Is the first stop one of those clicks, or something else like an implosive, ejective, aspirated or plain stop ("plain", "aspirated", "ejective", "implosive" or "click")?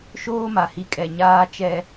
ejective